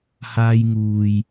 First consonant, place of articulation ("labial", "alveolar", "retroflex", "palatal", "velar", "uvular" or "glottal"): glottal